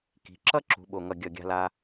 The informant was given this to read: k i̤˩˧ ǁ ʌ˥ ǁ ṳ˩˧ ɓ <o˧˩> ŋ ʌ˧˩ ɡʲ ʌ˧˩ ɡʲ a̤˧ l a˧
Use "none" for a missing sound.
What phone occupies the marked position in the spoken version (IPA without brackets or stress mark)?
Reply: o˧˩